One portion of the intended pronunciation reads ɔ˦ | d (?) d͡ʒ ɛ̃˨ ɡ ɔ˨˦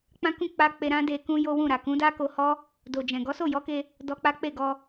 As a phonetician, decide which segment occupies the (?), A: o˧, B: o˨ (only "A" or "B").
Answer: B